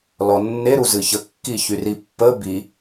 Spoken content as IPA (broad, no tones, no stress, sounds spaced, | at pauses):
l ɔ nː e ɾ u z ɨ ç ə kː i ç y r i pː ə b i